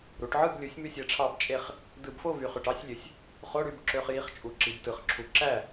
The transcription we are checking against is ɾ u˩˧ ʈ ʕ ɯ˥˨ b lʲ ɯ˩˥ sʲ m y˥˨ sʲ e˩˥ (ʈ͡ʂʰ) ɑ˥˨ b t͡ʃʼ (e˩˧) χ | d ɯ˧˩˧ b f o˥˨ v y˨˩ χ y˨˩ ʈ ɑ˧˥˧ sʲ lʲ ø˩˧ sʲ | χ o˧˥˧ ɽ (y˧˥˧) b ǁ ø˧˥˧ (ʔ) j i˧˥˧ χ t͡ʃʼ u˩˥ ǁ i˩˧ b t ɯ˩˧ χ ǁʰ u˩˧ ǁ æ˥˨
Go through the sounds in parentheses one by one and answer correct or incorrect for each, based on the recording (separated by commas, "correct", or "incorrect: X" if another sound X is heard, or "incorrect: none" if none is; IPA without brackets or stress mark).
correct, incorrect: e˥˨, correct, incorrect: χ